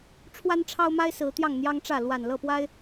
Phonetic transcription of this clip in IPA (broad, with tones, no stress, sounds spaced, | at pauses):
ʈ͡ʂʰ w a˦ n ʈ͡ʂʰ ɑ˦ ʊ̯ m a˦ ɪ̯ s ɹ̩˨˦ t̪ j ɑ˥˨ ŋ n̪ j ɑ˦ ŋ ʈ͡ʂ ä˥˨ l w a˨˩ n l ɤ˥˨ p w a˦ ɪ̯